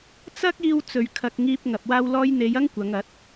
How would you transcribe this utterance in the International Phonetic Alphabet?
t͡sɐ˥k̚ iː˧wt͡sɵ˨ɥkʰɐ˨k̚ ŋiː˧p̚ ŋɐ˨p̚waː˧wlɔː˧jn̪e˨˧j ɐ˥ŋkʷɐ˨˧ŋɐ˨˥t̚

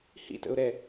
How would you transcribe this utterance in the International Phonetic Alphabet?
hḭtə̰ʊ̯ɾɛ

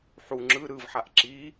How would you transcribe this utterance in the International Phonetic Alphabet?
ħu ŋ͡ǁɯ ɾɯvħaʔ ǁi

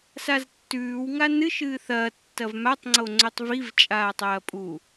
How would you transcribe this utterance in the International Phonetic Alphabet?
saztːʉːwŋa nɨʃɨː θɐː tːɐvmatˤŋ͡ǀo ŋ͡ǀɵtˤviv t͡ʃʼaːtˤɐːpʼu

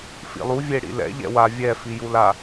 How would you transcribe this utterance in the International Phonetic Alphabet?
fḭlˠu vʲeɽḭlɛ̰ ʎɛ̰wa vʲɛ fijula

